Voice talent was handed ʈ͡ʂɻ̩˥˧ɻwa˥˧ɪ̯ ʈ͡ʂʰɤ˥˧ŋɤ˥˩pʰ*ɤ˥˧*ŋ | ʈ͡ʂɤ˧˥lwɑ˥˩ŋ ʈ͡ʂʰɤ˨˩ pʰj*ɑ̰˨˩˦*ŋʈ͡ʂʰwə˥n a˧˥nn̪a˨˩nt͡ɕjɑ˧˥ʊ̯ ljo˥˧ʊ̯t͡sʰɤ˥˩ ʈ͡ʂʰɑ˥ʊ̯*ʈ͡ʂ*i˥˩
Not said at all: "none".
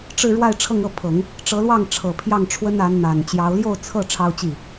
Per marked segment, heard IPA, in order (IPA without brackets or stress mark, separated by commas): ɤ˨˩˦, ɑ˥˩, t͡ɕ